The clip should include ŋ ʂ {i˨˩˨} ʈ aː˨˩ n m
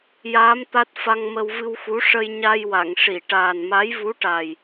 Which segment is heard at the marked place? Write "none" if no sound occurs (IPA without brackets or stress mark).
i˨˩˨